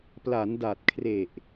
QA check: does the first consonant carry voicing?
no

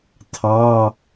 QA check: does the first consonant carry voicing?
no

